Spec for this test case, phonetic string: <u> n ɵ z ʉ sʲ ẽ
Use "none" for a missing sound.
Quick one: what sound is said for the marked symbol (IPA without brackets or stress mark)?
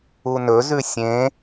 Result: u